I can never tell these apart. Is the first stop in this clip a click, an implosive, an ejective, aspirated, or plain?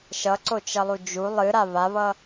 click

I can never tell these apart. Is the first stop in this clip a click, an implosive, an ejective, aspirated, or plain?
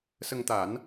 plain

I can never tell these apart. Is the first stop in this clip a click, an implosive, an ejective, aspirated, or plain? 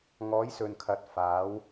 aspirated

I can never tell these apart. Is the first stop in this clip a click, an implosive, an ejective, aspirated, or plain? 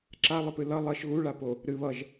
click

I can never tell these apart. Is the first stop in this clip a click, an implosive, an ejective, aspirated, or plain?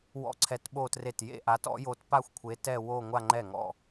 click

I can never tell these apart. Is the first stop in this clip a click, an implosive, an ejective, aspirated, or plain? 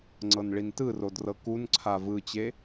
click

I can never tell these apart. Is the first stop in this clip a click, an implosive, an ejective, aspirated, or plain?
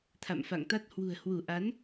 aspirated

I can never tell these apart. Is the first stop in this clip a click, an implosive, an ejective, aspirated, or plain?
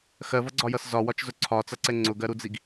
click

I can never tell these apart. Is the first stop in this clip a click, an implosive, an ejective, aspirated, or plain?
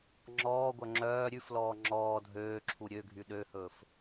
click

